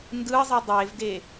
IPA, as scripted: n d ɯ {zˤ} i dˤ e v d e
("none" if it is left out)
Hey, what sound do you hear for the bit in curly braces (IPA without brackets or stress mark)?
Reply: zˤ